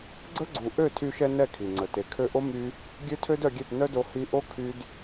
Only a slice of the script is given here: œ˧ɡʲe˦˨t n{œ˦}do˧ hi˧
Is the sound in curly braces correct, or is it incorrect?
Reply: correct